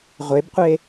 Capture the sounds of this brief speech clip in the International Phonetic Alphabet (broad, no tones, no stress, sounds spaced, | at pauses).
ʁʷ e b qʷ e